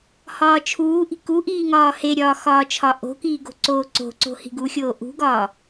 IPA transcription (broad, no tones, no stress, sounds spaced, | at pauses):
h ɒː t͡ʃʰ uː ʔ i̤ k u ʔ iː ŋ ɒː h e ɾʲ ɒː x ɒː t͡ʃʰ ɒ ʔ o̤ k iː ɡ o̤ ǀ oː ǀ o̤ ǀ o̤ h i̤ ɡ u xʲ oː ʔ ṳ ɡ ɒː